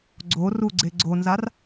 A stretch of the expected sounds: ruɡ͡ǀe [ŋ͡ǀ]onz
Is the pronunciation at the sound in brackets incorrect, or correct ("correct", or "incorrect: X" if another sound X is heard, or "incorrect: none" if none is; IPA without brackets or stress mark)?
incorrect: ɡ͡ǀ